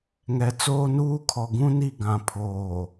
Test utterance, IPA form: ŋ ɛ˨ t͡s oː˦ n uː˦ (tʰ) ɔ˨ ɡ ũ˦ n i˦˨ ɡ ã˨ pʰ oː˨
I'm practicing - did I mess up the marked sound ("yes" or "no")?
yes